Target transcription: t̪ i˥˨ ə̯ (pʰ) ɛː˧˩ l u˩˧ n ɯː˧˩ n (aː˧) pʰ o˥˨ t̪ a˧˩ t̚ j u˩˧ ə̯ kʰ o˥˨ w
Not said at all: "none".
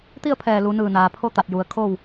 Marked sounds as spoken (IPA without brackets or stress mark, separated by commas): pʰ, aː˩